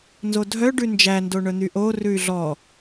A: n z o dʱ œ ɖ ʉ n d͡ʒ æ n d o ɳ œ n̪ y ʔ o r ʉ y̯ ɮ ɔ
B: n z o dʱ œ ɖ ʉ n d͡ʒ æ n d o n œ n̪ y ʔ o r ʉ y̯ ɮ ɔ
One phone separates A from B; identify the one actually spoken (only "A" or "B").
A